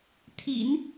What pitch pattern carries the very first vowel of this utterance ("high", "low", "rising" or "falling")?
low